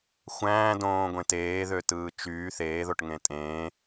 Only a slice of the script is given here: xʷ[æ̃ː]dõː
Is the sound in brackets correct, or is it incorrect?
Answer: correct